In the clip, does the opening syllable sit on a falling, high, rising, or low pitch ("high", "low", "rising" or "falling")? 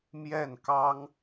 falling